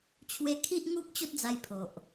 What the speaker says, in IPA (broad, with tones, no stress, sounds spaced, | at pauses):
t͡ɕʰ w e˦ kʰ i˦ ʔ ŋ u˦ p̚ t͡ɕ o˦ t̚ d͡z a˧ j pʰ o˨ ʔ